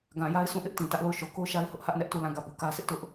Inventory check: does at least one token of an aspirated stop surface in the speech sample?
no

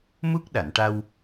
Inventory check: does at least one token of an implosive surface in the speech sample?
yes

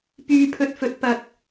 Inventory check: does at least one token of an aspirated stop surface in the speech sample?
yes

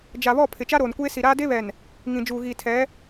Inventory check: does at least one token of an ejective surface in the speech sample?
no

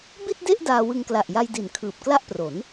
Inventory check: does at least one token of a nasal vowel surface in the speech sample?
no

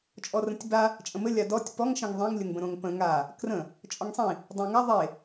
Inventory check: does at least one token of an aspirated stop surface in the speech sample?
no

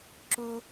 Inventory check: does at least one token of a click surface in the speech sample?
yes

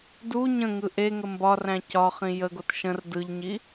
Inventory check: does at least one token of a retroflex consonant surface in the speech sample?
no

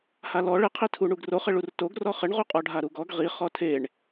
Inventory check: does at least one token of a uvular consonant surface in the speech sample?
yes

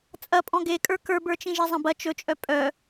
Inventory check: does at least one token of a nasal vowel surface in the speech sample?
yes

